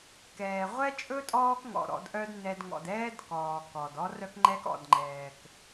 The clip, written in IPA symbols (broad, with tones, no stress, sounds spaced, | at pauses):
k ɛː˨ ʁʷ ɛ˦ t͡ʃʼ ɵ˦ tʼ ɔː˦ k ŋ ɔ̰˨ ɾ ɔ̰˧ d ʔ œ˦ d n ɛ˧ d ŋ ɔ̰˨ d ɛː˦ d k ɔː˨ k ɔ˨ d ɔ˦ r œ˦ k ŋ͡ǃ ɛ˦ k ɔ̰˨ d ŋ͡ǃ ɛː˨ k